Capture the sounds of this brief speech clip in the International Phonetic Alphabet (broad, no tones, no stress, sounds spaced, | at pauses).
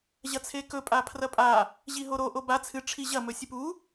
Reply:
ʑ ɐ t͡sʰ e k ɵ pʼ a pʰ r ɐ pʼ a | ʑ i ɦ o ɾ o ʔ o b a t͡sʰ ɨ ʈ͡ʂʰ i ʑ ɐ m ɵ sʲ ɨ p u